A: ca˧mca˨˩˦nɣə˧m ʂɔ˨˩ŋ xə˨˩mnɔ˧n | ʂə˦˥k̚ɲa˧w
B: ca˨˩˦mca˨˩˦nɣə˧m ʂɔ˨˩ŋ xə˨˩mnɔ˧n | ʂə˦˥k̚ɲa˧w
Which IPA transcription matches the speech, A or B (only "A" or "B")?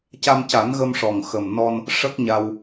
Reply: A